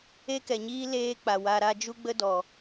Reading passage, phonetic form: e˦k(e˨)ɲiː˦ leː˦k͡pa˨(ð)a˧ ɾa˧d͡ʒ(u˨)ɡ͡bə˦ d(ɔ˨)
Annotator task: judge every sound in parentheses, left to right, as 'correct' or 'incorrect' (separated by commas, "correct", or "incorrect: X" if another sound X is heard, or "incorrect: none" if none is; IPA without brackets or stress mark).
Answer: incorrect: ɛ˨, incorrect: w, incorrect: u˦, correct